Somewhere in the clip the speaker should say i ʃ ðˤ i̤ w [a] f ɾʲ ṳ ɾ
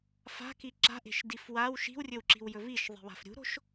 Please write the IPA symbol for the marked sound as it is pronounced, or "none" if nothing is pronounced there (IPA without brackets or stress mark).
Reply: a̤